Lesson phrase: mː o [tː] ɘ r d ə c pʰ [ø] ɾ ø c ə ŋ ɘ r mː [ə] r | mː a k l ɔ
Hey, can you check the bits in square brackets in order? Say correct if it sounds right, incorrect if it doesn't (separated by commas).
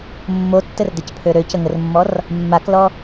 correct, correct, incorrect